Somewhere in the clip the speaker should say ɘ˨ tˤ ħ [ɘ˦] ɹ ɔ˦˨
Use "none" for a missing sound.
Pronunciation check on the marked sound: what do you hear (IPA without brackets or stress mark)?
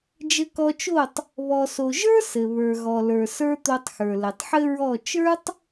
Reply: ɘ˦